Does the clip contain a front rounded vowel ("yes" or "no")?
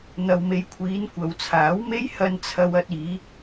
no